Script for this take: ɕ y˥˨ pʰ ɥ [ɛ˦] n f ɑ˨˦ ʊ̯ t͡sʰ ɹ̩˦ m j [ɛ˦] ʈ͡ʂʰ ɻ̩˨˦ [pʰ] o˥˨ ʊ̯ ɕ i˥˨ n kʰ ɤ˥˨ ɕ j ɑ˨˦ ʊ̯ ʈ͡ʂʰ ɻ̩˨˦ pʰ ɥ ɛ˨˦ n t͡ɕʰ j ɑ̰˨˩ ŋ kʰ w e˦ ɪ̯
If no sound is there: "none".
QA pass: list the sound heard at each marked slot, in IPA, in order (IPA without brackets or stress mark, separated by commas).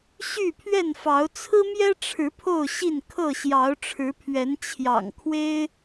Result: ɛ˥˨, ɛ˦, pʰ